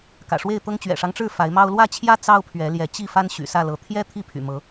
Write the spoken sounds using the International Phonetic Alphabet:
kä̰˨˩ʂwe˥˨ɪ̯t̪ɤ˦ŋ t͡ɕɥɛ̰˨˩ʂɑ˦ŋʈ͡ʂɻ̩˥˨ fa˨˦ɪ̯mɑ˦ʊ̯ lwä˥˨t͡ɕʰjä˦ t͡sɑ˦ʊ̯pʰɥɛ˨˦ljɛ˨˦ t͡ɕi˥˨fa˦n ɕy̰˨˩sä˥˨lɤ˨˦ t̪ʰjɛ˦ t̪ʰi˥˨pʰy̰˨˩mɤ˨˦

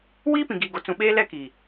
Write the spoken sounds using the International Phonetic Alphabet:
wiː˦ pĩ˨ɡiː˨ɡo˨ t͡sũ˨ɓeː˦ lɛ˦kiː˨

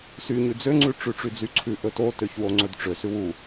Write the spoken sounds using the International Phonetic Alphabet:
syɲʉ d͡zøŋ͡ǀʉ ʈ͡ʂʉʈ͡ʂyd͡zyǀʰʉ ʔɵtotøç woŋ͡ǀɵdʈ͡ʂø sʉwu

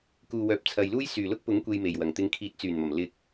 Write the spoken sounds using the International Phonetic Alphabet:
kuː˨wœː˨p̚t͡sʰɐ˨jluː˥j syː˨˩lʊ˥k̚pʊ˨˥ŋ kʷe˧jme˨˩jwɐ˨˩ŋ t̪ɪ˨˧ŋkʰiː˨˥t̚t͡syː˨˩nmɐ˨˩m lɪ˧k̚

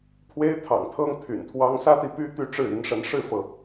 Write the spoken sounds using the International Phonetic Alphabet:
pʰwe˥ɪ̯ t̪ʰɑ̰˨˩ŋt̪ʰɤ˥ŋ t̪ʰy̰˨˩nt̪ʰwɑ˥ŋ sä˥t̪i˨py˥ t̪y˥˧ʈ͡ʂɻ̩˥˩i˧˥nʂə˧˥n ʂɻ̩˥˩fɤ˩

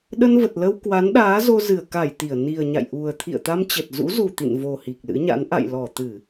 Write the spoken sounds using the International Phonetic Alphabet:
ɗə˧nvə˨˩t̚lə˧w kwa˨˦nɗaː˨˦ zo˧zɨ˧˩ə̯ ka˧˩j t̪i˧˩ə̯ ni˨˩ə̯ɲa̰˧˨jʔu˨˩ə̯ t̪ʰḭ˧˨ə̯t̪a˧mt͡ɕə˨˩t̚ zṵ˧˥zu˨˩ t̪ḭ˧˨n vo˨˩ hi˨˩k̚lɨ̰˧˥ɲa̰˧˥n ʔa̰˧˨jlɔ˧˩ t̪ɨ˧˩˨

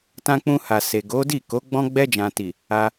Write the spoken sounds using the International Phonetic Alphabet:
tã˧k͡pũ˧ha˨ se˨ɡo˨˦ di˦˨ko˨˦ ɡ͡bɔ̃˧ɡ͡bɛ˧d͡ʒã˨ti˨ | a˧

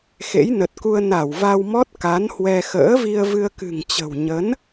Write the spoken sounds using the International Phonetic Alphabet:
xḛ˧˥jnə˨˩t̚ku˧ə̯ na˧˩wva˧wmɔ˦˥t̚ ka˨˦nhwɛ˧ xə̰ː˧˥vi˧ə̯ vɨ˧ə̯kɨ̤˨˩ŋ t͡ɕə̤˨˩w ɲə˨˦n

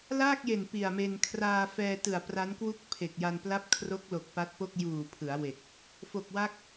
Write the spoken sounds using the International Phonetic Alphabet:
laː˥˩k̚je˨˩n pi˨˩a̯me˧n kʰraː˧ fɛː˧tɯ˨˩a̯ pra˦˥nkwu˥˩k̚ pʰe˨˩k̚ja˧npla˥˩p̚ kʰro˦˥k̚lo˨˩k̚ pa˦˥t̚po˥˩k̚ juː˨˩pʰɯ˩˦a̯we˨˩k̚ | fo˨˩k̚ wa˦˥k̚

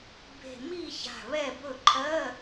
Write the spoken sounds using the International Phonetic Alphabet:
be̤˧˩mi˥˨ça̤˧˩ βɛ˥˨bɵ˥˨ ǃʰɜ˧˥˧

